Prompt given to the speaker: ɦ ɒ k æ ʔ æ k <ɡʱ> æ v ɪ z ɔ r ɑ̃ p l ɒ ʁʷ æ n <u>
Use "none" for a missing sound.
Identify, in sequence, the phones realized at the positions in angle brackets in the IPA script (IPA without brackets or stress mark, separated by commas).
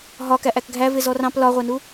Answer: ɡʱ, u